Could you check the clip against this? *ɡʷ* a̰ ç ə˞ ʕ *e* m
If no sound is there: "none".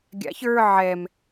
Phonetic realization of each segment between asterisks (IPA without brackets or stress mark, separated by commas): ɡʲ, ɛ